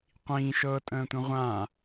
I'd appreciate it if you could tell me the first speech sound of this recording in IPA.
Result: qʷ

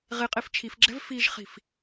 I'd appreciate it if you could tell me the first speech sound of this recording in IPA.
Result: ʁ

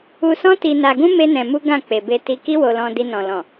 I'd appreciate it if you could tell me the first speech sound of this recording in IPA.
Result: u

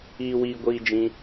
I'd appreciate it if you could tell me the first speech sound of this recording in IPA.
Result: iː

